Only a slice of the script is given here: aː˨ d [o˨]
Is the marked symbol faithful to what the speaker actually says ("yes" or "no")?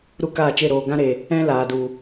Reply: no